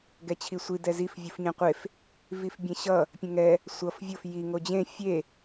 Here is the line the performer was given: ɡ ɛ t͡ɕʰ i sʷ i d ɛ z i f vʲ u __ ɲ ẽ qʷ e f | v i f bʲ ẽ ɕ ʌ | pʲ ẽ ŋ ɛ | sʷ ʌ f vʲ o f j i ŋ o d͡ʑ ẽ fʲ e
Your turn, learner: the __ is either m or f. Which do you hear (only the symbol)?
f